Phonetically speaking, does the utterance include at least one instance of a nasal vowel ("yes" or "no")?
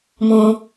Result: yes